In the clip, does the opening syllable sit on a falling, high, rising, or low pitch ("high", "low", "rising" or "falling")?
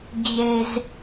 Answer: low